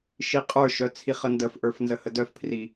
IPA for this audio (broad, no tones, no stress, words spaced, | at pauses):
ʃiqʼə˞ʃœ t͡sʰiχəndəfʔə˞f nzəhədœfpʰri